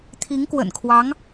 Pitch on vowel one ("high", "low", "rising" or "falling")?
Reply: rising